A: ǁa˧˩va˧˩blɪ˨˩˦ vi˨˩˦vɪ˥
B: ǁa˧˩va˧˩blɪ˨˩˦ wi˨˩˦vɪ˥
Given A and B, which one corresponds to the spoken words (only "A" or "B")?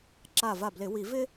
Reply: B